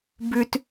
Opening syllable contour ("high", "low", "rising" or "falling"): high